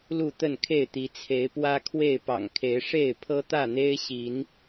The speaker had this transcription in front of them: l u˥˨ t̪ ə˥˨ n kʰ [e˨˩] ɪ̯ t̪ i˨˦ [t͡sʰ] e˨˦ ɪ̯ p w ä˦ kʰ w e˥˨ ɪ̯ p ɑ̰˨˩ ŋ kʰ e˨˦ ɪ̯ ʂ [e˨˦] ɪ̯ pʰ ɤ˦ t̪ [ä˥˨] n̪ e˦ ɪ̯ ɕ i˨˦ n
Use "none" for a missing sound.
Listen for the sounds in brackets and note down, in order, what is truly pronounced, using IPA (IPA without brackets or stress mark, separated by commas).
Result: e˥˨, t͡sʰ, e˥˨, ä˥˨